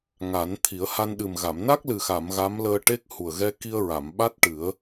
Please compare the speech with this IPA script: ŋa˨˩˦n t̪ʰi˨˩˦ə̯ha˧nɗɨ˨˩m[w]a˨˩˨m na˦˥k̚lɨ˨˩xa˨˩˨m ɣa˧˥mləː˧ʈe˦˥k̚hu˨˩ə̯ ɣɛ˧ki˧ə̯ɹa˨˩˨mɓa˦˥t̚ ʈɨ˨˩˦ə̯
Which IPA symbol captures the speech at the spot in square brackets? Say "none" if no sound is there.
ɣ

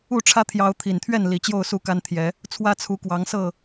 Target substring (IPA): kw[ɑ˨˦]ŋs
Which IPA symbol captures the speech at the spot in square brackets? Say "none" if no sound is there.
ɑ˨˦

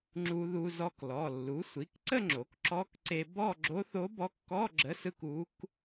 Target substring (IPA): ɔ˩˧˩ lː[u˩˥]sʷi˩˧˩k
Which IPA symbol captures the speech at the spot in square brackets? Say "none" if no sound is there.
u˩˥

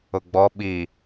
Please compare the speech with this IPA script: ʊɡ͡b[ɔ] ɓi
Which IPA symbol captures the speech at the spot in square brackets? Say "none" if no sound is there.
ɔ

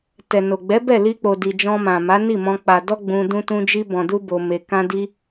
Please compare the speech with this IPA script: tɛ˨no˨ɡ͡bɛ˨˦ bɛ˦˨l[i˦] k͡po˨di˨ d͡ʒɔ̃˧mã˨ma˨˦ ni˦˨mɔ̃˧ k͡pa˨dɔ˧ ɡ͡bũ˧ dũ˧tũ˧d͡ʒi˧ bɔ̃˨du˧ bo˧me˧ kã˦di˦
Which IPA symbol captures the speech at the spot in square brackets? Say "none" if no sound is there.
i˧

